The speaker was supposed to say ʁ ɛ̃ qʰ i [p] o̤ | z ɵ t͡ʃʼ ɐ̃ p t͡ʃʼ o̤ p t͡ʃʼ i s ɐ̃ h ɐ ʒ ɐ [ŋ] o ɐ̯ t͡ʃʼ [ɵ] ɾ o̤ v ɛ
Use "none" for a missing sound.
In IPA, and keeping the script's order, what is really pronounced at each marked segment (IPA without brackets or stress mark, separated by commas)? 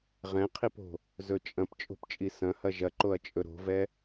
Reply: p, ǃ, ɵ